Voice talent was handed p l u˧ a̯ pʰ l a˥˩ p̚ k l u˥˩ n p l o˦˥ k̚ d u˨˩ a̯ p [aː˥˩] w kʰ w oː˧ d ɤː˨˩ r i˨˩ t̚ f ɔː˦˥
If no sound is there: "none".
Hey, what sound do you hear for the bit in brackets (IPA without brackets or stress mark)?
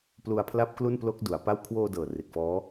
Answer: a˥˩